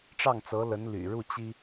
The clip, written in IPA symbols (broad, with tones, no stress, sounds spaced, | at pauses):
ʈ͡ʂ ɑ˥˩ ŋ t͡s ɤ˧˥ l ə˧˥ n l y̰˨˩ ɻ u˥˩ t͡ɕ i˥